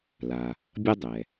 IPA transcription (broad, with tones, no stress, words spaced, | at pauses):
la˩ | bʲʌ˦dˤɛ˩